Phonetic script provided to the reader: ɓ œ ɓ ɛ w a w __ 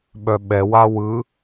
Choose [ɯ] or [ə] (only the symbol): ɯ